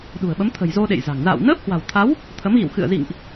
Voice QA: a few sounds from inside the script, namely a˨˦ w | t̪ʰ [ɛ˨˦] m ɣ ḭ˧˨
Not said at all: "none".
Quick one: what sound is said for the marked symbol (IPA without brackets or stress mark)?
ə˨˦